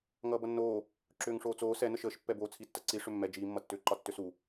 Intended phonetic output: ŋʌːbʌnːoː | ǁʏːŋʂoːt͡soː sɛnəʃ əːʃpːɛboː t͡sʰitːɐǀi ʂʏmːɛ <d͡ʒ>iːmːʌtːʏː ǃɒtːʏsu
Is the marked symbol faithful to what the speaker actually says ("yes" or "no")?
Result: yes